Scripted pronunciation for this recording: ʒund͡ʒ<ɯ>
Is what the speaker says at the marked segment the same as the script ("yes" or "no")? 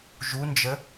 no